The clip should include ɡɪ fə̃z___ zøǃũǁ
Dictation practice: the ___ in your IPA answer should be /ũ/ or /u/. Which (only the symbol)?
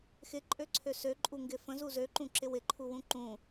u